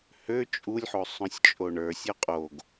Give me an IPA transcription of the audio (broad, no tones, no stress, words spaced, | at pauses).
hø t͡ʃʼulʲħo sˤõsʲt͡ʃʼoɳə˞sʲɔ qʼoɡ